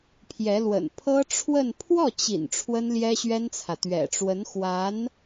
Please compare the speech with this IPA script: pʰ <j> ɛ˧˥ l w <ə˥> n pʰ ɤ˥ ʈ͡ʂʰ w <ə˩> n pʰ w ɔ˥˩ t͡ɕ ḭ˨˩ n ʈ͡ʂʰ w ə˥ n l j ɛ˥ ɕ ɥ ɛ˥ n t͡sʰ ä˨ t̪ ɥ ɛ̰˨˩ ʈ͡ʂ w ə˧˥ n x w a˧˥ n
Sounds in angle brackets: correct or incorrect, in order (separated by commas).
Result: correct, incorrect, incorrect